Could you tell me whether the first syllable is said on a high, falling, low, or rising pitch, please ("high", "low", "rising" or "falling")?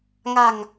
low